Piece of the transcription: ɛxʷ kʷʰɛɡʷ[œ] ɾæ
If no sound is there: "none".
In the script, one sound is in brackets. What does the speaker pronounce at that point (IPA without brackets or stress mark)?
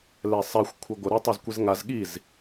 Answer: ə